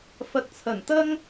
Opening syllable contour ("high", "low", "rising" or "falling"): low